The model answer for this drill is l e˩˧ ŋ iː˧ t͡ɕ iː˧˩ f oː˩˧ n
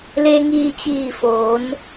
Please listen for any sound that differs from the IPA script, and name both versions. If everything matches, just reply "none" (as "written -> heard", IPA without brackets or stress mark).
e˩˧ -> e˧